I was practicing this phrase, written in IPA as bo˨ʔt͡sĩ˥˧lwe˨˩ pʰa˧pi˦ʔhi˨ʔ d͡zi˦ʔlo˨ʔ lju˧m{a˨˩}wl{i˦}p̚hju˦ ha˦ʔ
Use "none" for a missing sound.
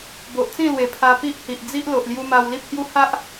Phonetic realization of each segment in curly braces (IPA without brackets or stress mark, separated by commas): a˧, i˦